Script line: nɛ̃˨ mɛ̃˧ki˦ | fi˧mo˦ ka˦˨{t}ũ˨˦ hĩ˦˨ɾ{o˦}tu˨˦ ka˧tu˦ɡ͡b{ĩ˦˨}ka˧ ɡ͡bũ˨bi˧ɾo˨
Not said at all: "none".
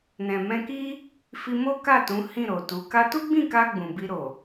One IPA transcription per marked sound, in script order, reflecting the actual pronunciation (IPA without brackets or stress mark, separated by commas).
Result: t, o˨, ĩ˦˨